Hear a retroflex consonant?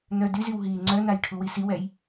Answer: yes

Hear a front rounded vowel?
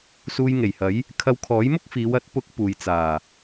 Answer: no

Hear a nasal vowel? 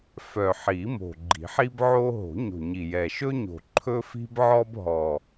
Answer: no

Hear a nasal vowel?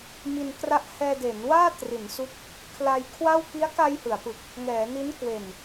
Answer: no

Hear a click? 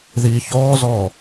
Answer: no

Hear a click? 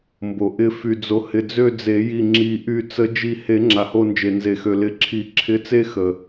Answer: yes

